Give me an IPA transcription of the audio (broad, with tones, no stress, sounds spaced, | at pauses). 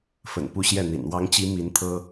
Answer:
f ə̰˨˩ n p u˥˧ ɕ j ɛ˥˩ n̪ ḭ˨˩ n w ɑ˧˥ ŋ t͡ɕ i˧˥ m i˧˥ n t̪ʰ ɤ˥